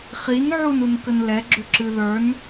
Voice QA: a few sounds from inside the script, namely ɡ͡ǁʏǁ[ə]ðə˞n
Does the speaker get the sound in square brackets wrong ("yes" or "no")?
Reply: yes